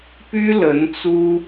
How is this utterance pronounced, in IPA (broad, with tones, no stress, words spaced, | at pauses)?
py˥ lə˧˥nt͡su˥